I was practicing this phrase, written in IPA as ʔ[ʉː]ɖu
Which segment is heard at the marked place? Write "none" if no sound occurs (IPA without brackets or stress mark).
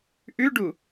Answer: ʉ